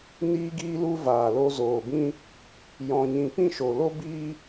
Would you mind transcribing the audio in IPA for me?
niː˧ɡiː˧lu˧ vaː˨ lo˧zoː˨bĩ˦ | jɔ̃˧ɲĩ˧ pĩ˦˨ʃo˨lo˦ biː˦

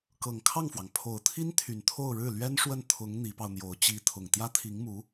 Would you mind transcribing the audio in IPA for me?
kɤ˨˩ŋkʰɑ˥˩ŋfwɑ˩ŋ pʰo˨˩ʊ̯t̪ʰi˥nt̪ʰy˨˩n t̪ʰo˥˧ʊ̯ɻɻ̩˥˩ lɥɛ˥nʂwə˥˩n t̪ʰʊ˧˥ŋ n̪i˧˥pɑ˧ʊ̯n̪jo˧˥ʊ̯ t͡ɕi˧˥ t̪ʰʊ˨˩ŋt̪jä˥t̪ʰi˧˥ŋmu˧˥

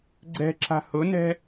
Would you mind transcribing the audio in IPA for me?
ɡ͡ǀɛ̤ǁa̤ hʊnɛ̤

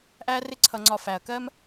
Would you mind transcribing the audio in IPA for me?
ʔæ˦ rɪ˦ǀʰʌ˧ŋ͡ǀɒ˧ fæ˨ɐ̯kɜ˦m

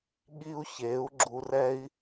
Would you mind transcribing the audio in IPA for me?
ɠi˧u̯çe˩˧u̯ ɡ͡ǁu˧rɛ˥i̯

